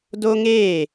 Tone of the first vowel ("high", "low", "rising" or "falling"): high